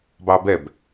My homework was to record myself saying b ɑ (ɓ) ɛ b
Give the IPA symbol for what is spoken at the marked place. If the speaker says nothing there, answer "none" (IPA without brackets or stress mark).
b